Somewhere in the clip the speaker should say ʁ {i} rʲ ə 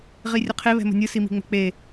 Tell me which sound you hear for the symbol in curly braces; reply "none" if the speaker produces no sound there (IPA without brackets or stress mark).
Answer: i